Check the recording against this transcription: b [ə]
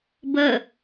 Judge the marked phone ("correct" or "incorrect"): correct